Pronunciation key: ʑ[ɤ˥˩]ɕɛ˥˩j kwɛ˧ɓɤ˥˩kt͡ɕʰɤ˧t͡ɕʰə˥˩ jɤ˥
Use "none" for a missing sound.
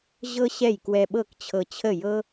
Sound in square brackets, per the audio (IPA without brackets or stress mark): ɤ˥